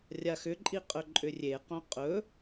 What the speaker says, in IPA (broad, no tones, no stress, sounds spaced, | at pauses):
rʲ a x ʏ ǃʼ i qʼ ɵ ǃʼ ʏ rʲ e q õ qʼ ɵ